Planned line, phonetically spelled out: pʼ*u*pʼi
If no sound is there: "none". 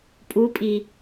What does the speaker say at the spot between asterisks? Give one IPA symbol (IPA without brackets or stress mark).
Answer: u